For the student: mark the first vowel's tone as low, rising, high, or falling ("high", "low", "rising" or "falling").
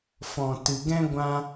low